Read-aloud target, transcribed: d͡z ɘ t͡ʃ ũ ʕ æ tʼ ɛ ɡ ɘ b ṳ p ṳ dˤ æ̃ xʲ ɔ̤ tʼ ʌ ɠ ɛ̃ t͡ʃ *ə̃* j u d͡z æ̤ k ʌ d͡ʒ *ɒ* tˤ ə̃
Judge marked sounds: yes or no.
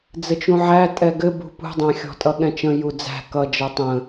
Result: yes, no

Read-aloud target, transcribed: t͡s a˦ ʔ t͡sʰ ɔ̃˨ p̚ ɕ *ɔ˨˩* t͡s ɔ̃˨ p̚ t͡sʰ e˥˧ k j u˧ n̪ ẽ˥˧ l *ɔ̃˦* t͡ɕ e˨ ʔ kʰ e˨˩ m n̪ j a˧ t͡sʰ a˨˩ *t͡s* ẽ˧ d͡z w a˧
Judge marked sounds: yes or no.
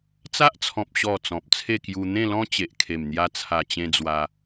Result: yes, yes, no

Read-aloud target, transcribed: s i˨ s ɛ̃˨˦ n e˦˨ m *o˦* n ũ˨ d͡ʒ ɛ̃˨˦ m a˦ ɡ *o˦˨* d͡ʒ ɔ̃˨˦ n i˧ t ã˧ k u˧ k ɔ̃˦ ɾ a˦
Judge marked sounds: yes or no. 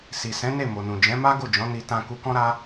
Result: no, yes

